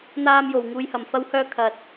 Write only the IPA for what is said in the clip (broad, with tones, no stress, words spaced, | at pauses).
n̪aː˧mjo˨˩w ŋuː˨jhɐ˨˩mfɐ˧whœː˧ kʰɐ˨t̚